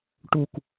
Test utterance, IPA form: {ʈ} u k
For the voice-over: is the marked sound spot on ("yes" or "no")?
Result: yes